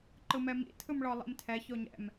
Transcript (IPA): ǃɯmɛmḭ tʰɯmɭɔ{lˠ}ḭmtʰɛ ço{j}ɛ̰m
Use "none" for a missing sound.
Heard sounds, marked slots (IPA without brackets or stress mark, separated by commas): lˠ, ɲ